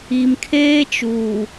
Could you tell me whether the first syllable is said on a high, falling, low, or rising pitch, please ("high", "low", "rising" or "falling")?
low